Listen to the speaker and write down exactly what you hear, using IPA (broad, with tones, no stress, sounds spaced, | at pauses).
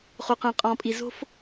χ o˨ q ə̃ː˨ qʼ ɔ̃ː˨ pʼ i˨ z o̤˦ f